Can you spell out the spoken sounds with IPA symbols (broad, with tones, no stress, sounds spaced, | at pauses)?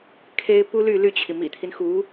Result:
kʰ e˥ ɪ̯ p u˥ l y˥˧ l y˥˩ t͡ɕʰ i˩ m ḭ˨˩ t̪ʰ i˦ n x u˧˥